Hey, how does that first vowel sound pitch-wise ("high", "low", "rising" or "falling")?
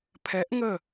rising